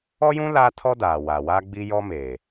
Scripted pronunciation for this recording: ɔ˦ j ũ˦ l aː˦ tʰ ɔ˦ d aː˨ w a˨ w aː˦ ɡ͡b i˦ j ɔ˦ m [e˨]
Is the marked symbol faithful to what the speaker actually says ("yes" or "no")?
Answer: no